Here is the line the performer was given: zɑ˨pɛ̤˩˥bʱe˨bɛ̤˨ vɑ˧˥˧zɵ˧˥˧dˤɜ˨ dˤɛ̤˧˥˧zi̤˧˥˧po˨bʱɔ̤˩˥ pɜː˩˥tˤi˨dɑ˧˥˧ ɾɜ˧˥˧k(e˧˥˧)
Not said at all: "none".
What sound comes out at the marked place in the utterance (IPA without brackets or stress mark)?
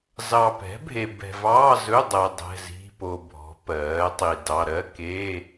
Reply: e˧˥˧